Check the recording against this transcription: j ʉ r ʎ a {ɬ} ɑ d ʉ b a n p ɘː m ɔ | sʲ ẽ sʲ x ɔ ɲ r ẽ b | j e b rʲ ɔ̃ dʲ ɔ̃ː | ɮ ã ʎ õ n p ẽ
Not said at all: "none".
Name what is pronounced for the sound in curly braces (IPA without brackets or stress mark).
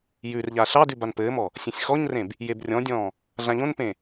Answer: ɬ